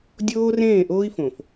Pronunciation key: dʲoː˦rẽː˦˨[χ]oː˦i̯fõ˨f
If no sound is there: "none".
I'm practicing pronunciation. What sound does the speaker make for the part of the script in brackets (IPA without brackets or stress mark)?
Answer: ʔ